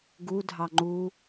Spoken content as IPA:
ɡudʱɑ ŋ͡ǃu

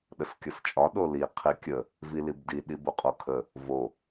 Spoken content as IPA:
ɗəskʲəst͡ʃʼɒ ɗoli qʰikʲə | vilibdi ɗiboqʼokʰə | vo

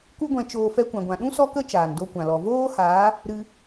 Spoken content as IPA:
ku˦ɡʷɛ̃˧t͡ʃoː˧ fɛ˧kʷã˨ɡʷã˨ɗũ˦ sɔ˦kə˦ t͡ʃaː˨ndo˧kʷã˨lɔ˨ voː˦haː˨˦ | ɾɨ˧

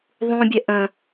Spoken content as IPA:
ðˤũbʲɛ ʔə̃

